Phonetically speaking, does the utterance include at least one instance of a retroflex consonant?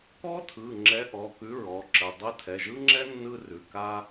no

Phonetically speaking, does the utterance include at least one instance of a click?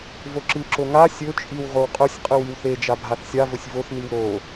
yes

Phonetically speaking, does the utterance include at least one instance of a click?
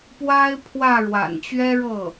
no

